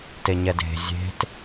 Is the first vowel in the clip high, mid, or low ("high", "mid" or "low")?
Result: mid